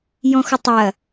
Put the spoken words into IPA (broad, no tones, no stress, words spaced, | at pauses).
jɔ̃xʊtˤɐ